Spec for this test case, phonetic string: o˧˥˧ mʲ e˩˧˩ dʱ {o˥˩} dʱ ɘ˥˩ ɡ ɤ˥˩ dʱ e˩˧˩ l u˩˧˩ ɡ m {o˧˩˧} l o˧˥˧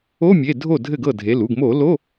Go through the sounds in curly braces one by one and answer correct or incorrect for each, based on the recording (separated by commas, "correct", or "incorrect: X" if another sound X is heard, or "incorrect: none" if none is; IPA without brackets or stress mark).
correct, correct